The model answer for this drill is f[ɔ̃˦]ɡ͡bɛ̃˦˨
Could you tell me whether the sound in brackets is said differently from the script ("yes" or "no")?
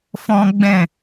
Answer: no